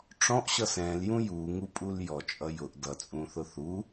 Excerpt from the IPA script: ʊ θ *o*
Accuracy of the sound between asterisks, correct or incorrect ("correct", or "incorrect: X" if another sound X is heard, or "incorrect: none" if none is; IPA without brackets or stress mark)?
incorrect: u